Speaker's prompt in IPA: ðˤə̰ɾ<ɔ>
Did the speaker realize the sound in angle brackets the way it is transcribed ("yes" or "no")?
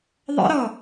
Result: yes